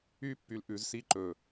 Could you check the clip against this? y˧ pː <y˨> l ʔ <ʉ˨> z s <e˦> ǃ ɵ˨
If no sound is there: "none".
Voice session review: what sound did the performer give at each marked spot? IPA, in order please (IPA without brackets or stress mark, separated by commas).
y˨, ʉ˨, i˦